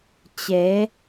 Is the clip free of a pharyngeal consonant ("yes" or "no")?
yes